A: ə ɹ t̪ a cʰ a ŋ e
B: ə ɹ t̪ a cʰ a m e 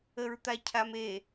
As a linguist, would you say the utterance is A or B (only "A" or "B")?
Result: B